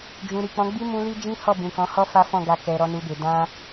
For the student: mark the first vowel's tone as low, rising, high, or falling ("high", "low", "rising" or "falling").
low